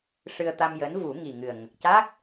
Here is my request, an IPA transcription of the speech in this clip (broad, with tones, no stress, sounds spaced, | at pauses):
ʂ ɨ˧ ə̯ t̪ a˧ m j əː˧˥ n v u˨˩˦ ŋ i˨˩ ŋ ɨ˨˩ ə̯ ŋ ə˨˩ k̚ c a˦˥ k̚